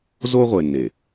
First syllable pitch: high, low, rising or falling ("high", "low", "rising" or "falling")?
high